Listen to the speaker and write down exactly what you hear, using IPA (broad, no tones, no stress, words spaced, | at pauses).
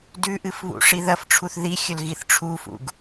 dʉʔɨfβṵ ʂiðɐfʈ͡ʂʰuθ ðixʲɵl ɣiθʈ͡ʂʰufṵɡ